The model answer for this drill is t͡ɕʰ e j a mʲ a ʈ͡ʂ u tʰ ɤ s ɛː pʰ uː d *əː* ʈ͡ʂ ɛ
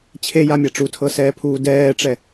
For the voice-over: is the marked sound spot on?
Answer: no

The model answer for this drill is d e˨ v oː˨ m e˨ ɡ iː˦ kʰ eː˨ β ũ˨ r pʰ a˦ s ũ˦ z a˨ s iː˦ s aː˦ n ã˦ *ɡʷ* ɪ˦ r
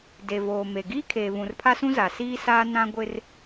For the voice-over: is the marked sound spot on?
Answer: yes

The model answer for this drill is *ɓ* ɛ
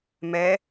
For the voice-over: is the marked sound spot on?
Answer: no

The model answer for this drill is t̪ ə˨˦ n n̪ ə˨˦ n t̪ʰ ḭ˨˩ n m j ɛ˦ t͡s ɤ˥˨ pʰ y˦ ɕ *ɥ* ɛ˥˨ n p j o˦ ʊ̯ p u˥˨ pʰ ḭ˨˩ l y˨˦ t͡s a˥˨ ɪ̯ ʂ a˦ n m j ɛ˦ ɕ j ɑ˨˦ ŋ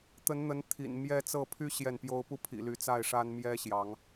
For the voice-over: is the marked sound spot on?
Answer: no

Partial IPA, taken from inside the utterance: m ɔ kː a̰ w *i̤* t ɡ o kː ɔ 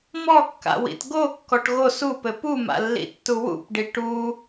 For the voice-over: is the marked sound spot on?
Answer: no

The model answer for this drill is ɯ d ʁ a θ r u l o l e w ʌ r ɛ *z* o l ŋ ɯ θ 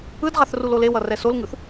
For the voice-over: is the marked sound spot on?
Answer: no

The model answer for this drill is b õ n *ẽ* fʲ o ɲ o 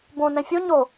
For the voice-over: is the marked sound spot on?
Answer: no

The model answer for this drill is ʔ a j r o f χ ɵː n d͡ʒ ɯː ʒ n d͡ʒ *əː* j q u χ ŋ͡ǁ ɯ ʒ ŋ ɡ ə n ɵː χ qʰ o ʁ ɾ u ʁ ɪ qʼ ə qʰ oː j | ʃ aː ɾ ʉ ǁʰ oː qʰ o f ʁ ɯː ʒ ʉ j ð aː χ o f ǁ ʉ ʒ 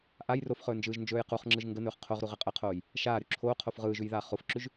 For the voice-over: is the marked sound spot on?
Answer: no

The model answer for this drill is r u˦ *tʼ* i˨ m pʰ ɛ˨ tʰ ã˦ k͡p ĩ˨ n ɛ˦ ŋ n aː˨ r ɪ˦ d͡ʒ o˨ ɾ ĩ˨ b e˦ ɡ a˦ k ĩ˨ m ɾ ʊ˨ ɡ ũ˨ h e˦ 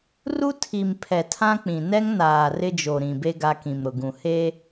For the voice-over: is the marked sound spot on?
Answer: no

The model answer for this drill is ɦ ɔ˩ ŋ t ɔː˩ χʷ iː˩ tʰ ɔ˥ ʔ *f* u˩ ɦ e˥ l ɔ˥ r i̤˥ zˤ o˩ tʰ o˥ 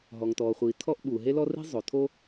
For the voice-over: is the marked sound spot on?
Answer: no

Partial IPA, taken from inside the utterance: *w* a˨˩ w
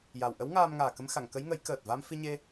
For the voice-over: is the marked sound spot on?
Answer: no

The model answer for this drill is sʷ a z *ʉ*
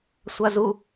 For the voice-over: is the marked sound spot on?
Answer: no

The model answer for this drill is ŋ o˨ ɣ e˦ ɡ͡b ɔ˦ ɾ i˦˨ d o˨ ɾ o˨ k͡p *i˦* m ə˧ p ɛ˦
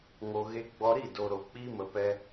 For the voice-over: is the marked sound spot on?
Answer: yes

